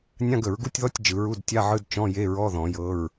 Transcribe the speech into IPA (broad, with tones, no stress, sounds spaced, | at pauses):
nʲ ã˧˥˧ ɡ ə˨˩˦ ɹ ɡ u˧˥˧ tʲ ð ɔ˧˥˧ tʲ d͡ʒ ɯ˨˩˦ ɹ u˧˥˧ d tʲ a˧˥˧ ʕ ɯ˧˥˧ d t͡ʃ ɔ̃˧˥˧ j e˧˥˧ ɹ ɔ˧˥˧ ð ɔ̃˨˩˦ j ɤ˧˥˧ ɹ